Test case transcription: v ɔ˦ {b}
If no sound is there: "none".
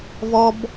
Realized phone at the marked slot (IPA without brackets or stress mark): b